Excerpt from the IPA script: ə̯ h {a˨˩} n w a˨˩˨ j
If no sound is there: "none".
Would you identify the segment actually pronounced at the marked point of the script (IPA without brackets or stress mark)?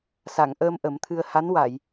a˧˥